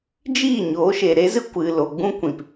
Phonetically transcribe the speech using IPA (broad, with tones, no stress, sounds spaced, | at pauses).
d͡ʒ iː˦˨ ɲ oː˨˦ ʃ e˨ ɾ e˦ z ɨ˦ kʷ ɨ˨ l o˨ ɡ͡b ũ˦ kʷ ĩ˨ p